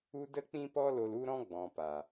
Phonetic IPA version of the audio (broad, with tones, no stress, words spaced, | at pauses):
u˦ də˦k͡pĩ˦pɔ˦lo˧l u˦ɾɔ̃˦ɡ͡bɔ̃˨ pa˨